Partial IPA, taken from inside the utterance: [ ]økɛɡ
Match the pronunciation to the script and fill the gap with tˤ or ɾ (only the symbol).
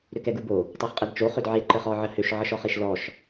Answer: ɾ